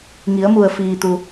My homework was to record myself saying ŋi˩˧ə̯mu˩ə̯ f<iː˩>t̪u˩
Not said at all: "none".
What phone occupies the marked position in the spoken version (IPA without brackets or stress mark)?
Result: iː˩